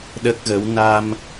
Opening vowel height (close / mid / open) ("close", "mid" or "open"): mid